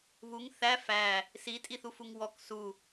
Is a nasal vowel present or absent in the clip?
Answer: absent